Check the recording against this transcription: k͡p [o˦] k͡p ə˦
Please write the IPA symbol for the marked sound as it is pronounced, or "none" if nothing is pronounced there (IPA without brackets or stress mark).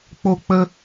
o˦